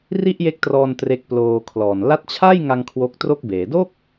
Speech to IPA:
r i˥˩ ʔ j e˦˥ k̚ t r ɔː˧ n t r e˦˥ k̚ p l oː˧ kʰ l ɔː˨˩ n l a˦˥ t̚ t͡ɕʰ a˥˩ j ŋ a˧ ŋ kʰ w o˦˥ k̚ t r o˥˩ k̚ b eː˩˦ d o˥˩ k̚

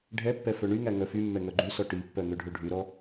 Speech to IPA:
ɖʱ ɛ pː ɛ f œ ɳ y ŋ æ ŋ œ f y mː ɛ ŋ œ ɡ͡ǃ y s ɔ ʈ i pː œ ŋ ø ɖʱ ø ɖʱ y ɾ ɔ

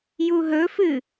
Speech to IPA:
j u ɦ ɵ f ɨ

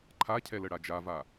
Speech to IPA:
ǃʰ a cʰ ɛ l ə ɽ a d͡ʒ a v a

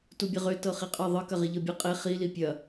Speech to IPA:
t u bʲ ɐ ʁ ø t ɤ χ i qʼ ɤ ðˤ ɯ k ɐ ʁ i ʎ ɤ bʲ ɯ qʼ e χ i l i pʲ ɐ

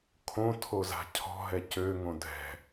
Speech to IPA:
kʰ õ tʰ o z a̤ cʰ ɔ̤ ɦ ɛ c ø ŋ õ dʱ ɛ̤

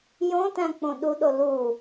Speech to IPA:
j õ t æ̃ k͡p õ ɗ u ɗ o l u

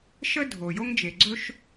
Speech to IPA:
ʃ ə˥ dʱ o˩ j o˥ ŋ d͡ʒ e˩ ɡ͡ǀ ɵ˥ ʃ

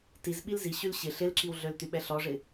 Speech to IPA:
t i z ɓ i l z i ɕ y l ɕ ɪ ɬ ɪ l ǁ i w ɮ ø l t y ɓ ɛ ɬ ɔ ʐ ɪ

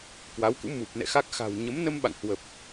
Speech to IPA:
k w a˨˦ w k ṵ˧˥ m u˨˩ p̚ n ɛ̰˧˨ x a˦˥ k̚ x a̤˨˩ w ɲ ə˨˦ m n ə˧ m ɓ a̰˧˨ ŋ h w ə˨˩ p̚

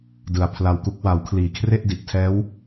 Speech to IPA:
d ɯ˩˦ a̯ pʰ l a˧ w k u˦˥ k̚ w a˩˦ w kʰ l iː˨˩ kʰ r e˥˩ ʔ d i˨˩ ʔ tʰ ɛː˦˥ w

